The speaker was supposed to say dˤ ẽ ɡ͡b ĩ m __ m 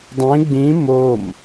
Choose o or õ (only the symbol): o